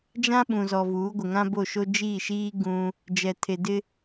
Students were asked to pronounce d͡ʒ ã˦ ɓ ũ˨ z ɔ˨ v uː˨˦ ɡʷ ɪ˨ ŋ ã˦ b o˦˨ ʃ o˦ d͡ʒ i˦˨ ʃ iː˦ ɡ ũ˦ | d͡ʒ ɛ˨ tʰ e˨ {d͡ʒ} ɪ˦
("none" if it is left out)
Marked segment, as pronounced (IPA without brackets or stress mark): d